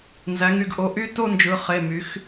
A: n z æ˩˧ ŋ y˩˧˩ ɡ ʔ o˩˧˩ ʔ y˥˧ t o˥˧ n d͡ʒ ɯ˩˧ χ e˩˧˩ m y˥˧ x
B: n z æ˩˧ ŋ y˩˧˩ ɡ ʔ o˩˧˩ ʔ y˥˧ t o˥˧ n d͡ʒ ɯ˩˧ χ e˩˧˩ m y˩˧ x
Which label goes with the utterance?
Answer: B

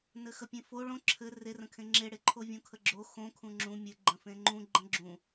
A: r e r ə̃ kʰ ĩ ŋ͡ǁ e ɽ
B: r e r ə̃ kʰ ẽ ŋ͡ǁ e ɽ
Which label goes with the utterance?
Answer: B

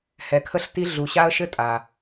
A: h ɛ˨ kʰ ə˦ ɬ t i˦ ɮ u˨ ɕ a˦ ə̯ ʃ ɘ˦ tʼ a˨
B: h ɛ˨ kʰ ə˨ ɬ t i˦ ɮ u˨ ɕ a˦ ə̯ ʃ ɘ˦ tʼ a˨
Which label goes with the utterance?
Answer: A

